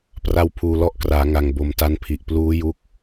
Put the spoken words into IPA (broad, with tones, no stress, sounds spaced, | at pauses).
p r a˦˥ w pʰ uː˨˩ l ɔ˦˥ ʔ k r aː˩˦ ŋ a˨˩ ŋ b o˨˩ m t a˦˥ n pʰ i˨˩ ʔ p l uː˦˥ j u˦˥ k̚